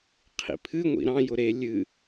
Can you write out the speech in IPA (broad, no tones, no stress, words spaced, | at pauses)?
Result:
qʰḭpʰɨŋʷḭ ɾɑ̃jʊ ɾe lʲɨ